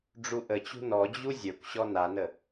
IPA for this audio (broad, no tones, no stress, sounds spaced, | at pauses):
ɖ͡ʐ u ʔ ə t͡ɕ ṳ n ɔ d͡ʑ u zʲ ə˞ kʷ ɕ ɔ n a n ə